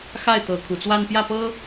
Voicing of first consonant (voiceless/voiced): voiceless